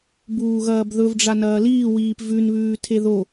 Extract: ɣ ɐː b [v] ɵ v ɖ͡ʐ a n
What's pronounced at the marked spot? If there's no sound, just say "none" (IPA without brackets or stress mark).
ð